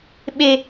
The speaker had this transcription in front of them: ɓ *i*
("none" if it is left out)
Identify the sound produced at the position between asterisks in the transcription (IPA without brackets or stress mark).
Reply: e